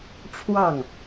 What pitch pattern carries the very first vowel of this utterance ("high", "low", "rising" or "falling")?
falling